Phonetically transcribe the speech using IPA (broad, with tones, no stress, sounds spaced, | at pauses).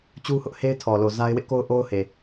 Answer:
t͡ɕ u˦ h ʊ˦ ʔ h e˦ ɪ̯ tʰ ɔ˨ l o˨ z a˦ ɪ̯ w ɪ˦ ʔ k o˦ ʊ̯ ʔ o˦ ʊ̯ h e˨